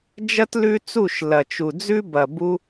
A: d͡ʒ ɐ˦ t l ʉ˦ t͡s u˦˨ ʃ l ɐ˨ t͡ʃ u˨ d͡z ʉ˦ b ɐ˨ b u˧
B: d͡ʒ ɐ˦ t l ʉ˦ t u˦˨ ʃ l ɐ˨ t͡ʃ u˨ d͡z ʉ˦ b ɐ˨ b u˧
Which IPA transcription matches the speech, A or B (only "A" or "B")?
A